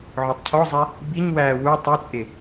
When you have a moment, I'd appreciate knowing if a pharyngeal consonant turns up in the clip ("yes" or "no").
yes